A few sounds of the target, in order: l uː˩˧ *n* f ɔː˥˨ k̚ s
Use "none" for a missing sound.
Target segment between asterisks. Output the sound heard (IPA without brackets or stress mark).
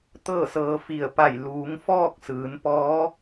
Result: ŋ